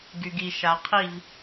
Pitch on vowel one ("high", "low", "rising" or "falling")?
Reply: low